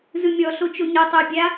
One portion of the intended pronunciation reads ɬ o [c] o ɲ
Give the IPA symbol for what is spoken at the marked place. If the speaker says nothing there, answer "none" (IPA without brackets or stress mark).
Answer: t͡ʃ